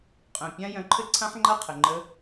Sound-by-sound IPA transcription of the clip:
qʼœ̃˩pʲã˥ jœ̃˧ǃʰɘ˥ǀʰã˥ħŋ͡ǃa˥ qʰə˩ŋ͡ǃə˧

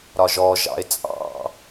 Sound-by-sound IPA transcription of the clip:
ɾɒʒɔ ʒɑ̰ɪ̯t͡sʼɑ̰

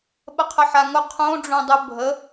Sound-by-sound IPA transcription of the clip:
ɓəqʰəħaŋʊ qʰõ ɖ͡ʐõdˤʊ bʱə

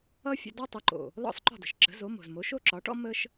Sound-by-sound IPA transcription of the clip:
ʌ˥fʲə̰˧dɔ˥ tˤə˩˥ǃo̰˩ | lɔ̰˥˩sˤǃɔ̤˥˩də̤˩ʃ ǁə̤˩˥zo˩˥mo̤˩zmo˩˥ ʃo˥ǁɒ˩˥ʈɔ̰˥ mə˥ʃ

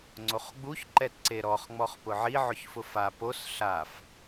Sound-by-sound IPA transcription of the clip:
ŋ͡ǀoχɡ͡buç ǃɛtǀeɾɔχ ŋ͡mɔχpʊʕi ʕʊçfʊfa pos ɬaf

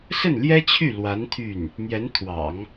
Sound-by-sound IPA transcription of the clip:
sə˥˩nljɛ˥t͡ɕʰy˥˩ lwa˧˥n t̪ʰy˥˩n | n̪jɛ˧˥nt̪ʰwɑ̰˨˩˦ŋ

